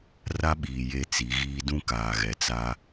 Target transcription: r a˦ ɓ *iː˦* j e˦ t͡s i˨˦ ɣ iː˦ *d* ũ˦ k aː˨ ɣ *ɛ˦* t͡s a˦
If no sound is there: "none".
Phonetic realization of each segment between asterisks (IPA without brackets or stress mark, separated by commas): iː˨, d, ɛ˨